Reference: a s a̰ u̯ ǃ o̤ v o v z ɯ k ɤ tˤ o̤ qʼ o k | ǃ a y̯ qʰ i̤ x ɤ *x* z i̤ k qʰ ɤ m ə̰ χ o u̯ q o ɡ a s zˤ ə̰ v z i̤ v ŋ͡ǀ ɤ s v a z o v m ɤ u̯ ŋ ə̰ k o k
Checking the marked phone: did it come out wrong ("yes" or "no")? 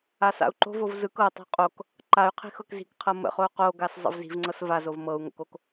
yes